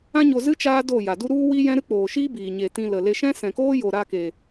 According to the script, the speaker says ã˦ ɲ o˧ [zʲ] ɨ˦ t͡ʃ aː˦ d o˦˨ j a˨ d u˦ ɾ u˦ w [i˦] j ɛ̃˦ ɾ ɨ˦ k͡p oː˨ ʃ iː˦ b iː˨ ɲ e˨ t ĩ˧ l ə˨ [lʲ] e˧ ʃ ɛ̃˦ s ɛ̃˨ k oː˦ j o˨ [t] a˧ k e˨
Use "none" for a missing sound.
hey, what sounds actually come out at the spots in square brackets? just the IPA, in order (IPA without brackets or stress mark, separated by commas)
z, i˦, l, ɾ